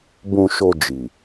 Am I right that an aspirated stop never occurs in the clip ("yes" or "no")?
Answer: yes